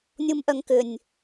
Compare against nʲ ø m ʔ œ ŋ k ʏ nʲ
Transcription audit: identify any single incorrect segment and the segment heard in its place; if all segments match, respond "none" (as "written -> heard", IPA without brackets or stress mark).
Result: ø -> u